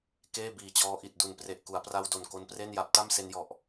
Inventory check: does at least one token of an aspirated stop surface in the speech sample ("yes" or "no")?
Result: no